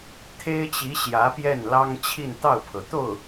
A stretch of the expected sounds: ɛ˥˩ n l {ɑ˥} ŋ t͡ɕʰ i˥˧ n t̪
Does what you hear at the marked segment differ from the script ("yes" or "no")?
no